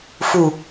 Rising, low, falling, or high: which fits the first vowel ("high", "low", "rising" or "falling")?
low